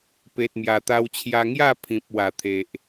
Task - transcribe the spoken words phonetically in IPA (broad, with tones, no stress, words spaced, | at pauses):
pe˨t̚mja˨˩t̪a˧wt͡ɕʰja˧ ŋja˥˧pʰĩ˨p̚ wa˨˩t̪ʰe˨ʔ